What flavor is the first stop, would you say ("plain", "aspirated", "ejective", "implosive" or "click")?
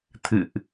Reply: aspirated